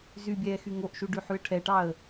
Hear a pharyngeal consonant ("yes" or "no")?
yes